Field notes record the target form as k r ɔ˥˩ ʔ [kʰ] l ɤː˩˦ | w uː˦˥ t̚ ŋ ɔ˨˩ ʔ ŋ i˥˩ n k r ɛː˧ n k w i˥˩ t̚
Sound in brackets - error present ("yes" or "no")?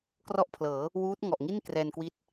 yes